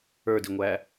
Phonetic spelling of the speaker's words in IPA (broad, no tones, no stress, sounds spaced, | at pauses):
ə˞ d i ŋʷ æ